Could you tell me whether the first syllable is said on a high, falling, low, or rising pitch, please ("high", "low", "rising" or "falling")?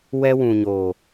high